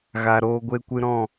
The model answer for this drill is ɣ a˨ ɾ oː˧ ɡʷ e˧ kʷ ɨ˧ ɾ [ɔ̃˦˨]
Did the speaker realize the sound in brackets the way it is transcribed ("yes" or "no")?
yes